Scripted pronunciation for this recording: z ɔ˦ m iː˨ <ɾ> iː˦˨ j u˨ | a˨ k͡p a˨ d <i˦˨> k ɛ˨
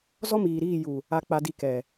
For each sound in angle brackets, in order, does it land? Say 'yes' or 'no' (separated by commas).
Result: yes, yes